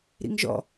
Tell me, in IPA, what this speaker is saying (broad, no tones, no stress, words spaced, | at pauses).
ɾḭŋʒɔ̰